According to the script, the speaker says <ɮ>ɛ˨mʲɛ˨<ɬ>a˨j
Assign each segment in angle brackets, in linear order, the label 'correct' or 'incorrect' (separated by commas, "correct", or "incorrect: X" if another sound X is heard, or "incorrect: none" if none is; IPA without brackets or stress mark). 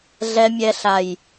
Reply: correct, correct